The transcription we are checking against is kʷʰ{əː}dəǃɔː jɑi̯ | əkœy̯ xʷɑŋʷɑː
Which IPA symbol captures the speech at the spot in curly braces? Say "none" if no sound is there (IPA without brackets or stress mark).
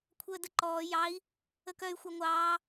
əː